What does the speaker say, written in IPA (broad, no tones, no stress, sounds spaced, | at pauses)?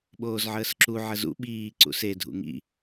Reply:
ɓ oː z ʕ əː s ǁ u ʕ ə z ṵ ɓ iː ǀ ṵ s e dʱ ṵ ŋ ḭ